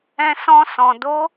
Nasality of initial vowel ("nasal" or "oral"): nasal